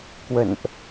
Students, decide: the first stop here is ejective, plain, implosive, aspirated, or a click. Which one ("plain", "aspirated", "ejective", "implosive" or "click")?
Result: plain